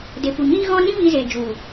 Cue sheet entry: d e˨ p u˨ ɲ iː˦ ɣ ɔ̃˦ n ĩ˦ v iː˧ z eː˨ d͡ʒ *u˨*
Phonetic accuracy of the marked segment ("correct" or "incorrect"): correct